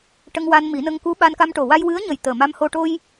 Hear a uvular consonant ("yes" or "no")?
no